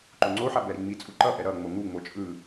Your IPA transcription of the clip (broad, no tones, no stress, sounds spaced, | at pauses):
ǃ o ŋ͡ǀ o ħ a b ɛ ɾ i ŋ͡m i t͡sʼ u ǃ ʌ ʔ ɛ ɾ ʌ ŋ͡m o ŋ u ŋ͡m o t͡ʃʼ ɯ